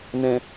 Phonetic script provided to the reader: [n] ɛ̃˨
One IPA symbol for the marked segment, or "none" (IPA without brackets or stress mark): n